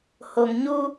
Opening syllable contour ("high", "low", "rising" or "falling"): low